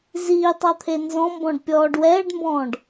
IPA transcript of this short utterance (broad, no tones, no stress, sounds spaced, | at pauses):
z iː tˤ ɑ t̪ʰ e n z ɔ̃ m b ɔ̃ ɖ pʲ ɔː ɖ w ɛː ɖ m b ɔ̃ː ɖ